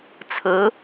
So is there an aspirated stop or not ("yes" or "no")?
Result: yes